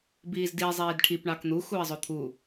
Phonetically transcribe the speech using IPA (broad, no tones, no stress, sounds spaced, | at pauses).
b iː z d i zˤ iː d ʈʰ i p ɳ ɑ k n̪ u x uː ə̯ zˤ o t̪ʰ u